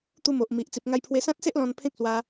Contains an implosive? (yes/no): no